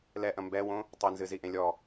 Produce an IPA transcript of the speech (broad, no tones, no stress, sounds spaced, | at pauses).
l ɛ ʔ ɐ̃ m b ɛ w õ | tˤ ɘ n z ɨ z i ʔ ẽ lʲ ɔ